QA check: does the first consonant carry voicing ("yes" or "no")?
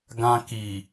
yes